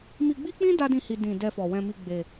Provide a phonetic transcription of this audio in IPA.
m i˧ ɡ͡b i˦ k͡p ĩ˦ d a˦ d ĩ˦˨ h i˧ d ĩ˨ d ɛ˧ f ɔ˨ w ɛ̃˧ m i˧ ɡ͡b e˧

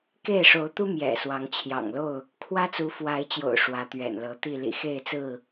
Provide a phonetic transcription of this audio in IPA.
k e˥˨ ɪ̯ ʂ o˨˦ ʊ̯ t̪ u˦ m j ɛ̰˨˩ s w ɑ˨˦ ŋ t͡ɕʰ j ɑ̰˨˩ ŋ l o˥˨ ʊ̯ | kʰ w ä˦ t͡s u˨˦ f w a˨˦ ɪ̯ t͡ɕ j o̰˨˩ ʊ̯ ʂ w ä˨˦ t̪ ɥ ɛ̰˨˩ n l ɤ˨˦ t̪ i˥˨ l ḭ˨˩ x e˥˨ ɪ̯ t͡s ɹ̩˥˨

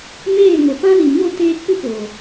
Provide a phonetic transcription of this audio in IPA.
m eː˦˨ ŋ o˨ p ã˦ l i˨ ɲ o˦˨ t eː˧ k͡p ɨ˦ p oː˨

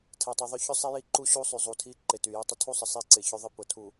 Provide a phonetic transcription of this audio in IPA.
tʰ ɛ˨ tˤ i˨ ðˤ ʏ˦ ç ʏ˦ sˤ e˦ j i˦ ǃ u˦ ɕ u˦ sˤ y˨ zˤ u˨ tʰ i˦ ǃ ɪ˨ t y˨ j e˦ tˤ ə˦ tʰ u˦ sˤ ə˨ sˤ e˦˨ ǀ ɪ˨ ç ʏ˦ ðˤ ɪ˦ p ʊ˨ tʰ u˨

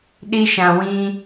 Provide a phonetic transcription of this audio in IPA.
ɗ i˧ ʃ ã˨ w ĩ˧

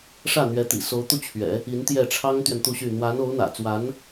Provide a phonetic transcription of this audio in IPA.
ʂ ä˥˩ n̪ ɥ ɛ˧˥ t̪ ḭ˨˩ s o˧˥ ʊ̯ t̪ u˥˩ t͡ɕʰ ɥ ɛ̰˨˩˦ | i˧˥ n t̪ j ɛ˥˩ ʈ͡ʂʰ ɑ˥ ŋ t̪ ɥ ɛ˨ n t̪ u˥˧ ɕ y˥˩ n̪ w a˧˥ n o˧˥ ʊ̯ n̪ ä̰˨˩ t͡s w a˧˥ n

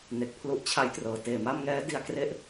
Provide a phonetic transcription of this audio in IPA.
n e˨˩ k̚ pʰ l u˦˥ ʔ t͡ɕʰ a˦˥ j t r ɤː˩˦ t eː˨˩ m a˥˩ m ŋ ɛː˦˥ d i˧ a̯ k r e˥˩ ʔ

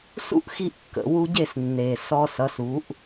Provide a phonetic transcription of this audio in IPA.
s ṵ˦ ʔ x i˧ ʔ kː ə̰˨ w u˧ ɟ e˦˨ s nː e˨ s ɔ˧ s ʌ˨˦ s u˨˦ ʔ

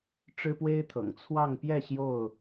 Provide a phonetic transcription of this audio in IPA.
ʈ͡ʂ ɻ̩˦ p w e˦ ɪ̯ t̪ʰ ɤ̰˨˩ ŋ t͡sʰ w ɑ˥˨ ŋ p j ɛ˥˨ ɕ j o˥˨ ʊ̯

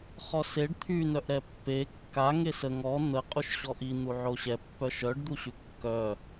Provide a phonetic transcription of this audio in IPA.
χ ɔ s e ɖ t̪ʰ y n œ ʔ ɾ ɛ pː e kː a ŋ e s ə ŋ ɔ n̪ ə qʼ u ʃ ɕ ɔ ʔ i n̪ u ʕ o ɕ ɛ pː œ ʃ œ ɖ d̪ u ɕ y kː œ

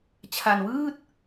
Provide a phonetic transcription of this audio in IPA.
t͡ɕʰ a˧ n w ɯː˥˩ t̚

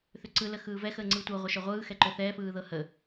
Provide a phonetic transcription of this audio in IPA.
θ ʏ ǀ ɯ l ə x ɯː v ɛ x əː ŋ͡ǀ ɯː tʷ ɤ ʁʷ ə ʃ œ ʁʷ ɯː x ɛ ǃ ʏ θ ɛː f ɯː ð ɤ h ə

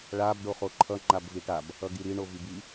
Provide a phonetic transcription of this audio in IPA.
ɭ a b ɖ o χ o ǃʰ ʌ ŋ͡ǃ a b v i ʈ a b | ʌ ɡ i ɾ i ɳ o v i b i

